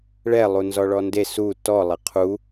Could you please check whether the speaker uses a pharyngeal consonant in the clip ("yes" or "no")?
no